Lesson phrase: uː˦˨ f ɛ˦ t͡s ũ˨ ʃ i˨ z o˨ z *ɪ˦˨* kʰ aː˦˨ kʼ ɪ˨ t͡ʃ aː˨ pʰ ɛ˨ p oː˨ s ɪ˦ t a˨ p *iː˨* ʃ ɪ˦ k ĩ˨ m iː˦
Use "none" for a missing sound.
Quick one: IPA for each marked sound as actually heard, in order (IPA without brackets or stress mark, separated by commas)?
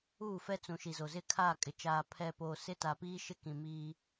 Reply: ɪ˦˨, iː˦